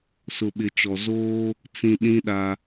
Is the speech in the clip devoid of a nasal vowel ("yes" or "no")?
no